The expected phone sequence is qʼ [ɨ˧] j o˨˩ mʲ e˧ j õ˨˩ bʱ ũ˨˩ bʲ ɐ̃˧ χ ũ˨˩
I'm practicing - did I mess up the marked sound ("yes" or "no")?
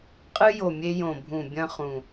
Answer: no